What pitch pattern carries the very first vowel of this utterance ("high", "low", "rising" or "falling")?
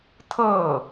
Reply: falling